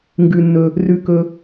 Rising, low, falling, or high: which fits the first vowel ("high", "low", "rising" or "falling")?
low